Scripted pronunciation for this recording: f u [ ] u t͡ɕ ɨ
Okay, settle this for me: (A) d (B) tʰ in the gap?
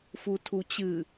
B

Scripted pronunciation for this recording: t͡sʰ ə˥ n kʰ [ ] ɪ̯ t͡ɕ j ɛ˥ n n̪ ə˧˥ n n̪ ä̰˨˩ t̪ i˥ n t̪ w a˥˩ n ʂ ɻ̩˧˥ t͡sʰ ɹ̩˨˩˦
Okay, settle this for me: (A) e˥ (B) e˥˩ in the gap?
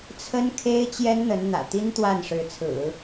A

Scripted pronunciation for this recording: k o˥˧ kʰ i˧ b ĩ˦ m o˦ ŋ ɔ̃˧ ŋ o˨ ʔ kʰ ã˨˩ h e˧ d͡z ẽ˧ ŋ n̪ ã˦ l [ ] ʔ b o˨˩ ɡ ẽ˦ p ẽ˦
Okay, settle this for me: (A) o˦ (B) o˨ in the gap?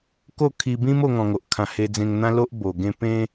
A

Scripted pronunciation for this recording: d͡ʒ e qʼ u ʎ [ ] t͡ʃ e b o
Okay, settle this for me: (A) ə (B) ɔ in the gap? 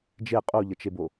A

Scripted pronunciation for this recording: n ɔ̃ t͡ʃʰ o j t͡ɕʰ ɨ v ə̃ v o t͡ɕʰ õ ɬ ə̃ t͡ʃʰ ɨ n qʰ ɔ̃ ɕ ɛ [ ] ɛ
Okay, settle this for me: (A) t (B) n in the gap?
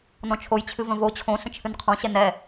B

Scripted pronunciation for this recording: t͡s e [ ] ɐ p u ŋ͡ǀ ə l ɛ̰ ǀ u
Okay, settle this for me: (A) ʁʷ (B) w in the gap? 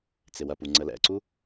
B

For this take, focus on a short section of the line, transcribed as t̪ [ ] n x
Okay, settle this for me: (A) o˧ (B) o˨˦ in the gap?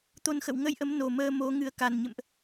A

